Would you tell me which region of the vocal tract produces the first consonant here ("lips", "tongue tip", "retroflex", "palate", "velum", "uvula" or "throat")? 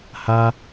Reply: throat